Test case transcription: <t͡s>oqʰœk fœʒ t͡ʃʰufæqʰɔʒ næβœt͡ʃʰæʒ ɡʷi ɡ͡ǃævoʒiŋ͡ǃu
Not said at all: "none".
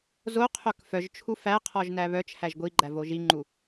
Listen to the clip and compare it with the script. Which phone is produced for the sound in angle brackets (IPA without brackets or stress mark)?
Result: z